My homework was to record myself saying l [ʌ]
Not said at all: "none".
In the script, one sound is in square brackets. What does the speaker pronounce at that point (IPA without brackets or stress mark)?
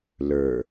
ə˞